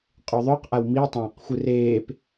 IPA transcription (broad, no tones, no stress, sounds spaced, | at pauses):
qʼ u ðˤ œ q ʔ a w m i tˤ ãː q xʷ ɨ r eː p